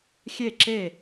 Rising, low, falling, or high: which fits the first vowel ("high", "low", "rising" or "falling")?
falling